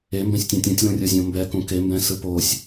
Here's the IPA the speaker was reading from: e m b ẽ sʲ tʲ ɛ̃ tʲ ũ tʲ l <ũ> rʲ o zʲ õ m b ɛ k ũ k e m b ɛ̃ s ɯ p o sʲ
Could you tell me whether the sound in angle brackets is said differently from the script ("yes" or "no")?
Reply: no